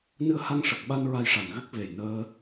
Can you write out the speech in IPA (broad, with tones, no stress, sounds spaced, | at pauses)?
n ɨ˧ ə̯ h a˧ ŋ ʂ ə˨˩ k̚ ɓ a˧ n ɹ a˧ j ʂ a˨˩ n ɣ ɨ˦˥ k̚ v e˨˩ j n əː˧